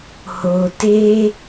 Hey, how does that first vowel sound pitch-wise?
low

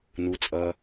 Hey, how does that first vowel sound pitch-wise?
low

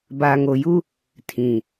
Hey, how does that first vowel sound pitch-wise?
low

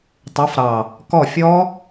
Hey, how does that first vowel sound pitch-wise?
rising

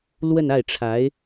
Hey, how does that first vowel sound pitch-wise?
falling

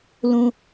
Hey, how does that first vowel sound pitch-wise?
high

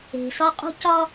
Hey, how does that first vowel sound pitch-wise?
low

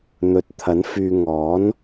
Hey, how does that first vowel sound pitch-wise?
rising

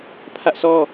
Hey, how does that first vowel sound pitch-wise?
high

